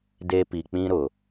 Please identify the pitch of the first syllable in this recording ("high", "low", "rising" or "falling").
high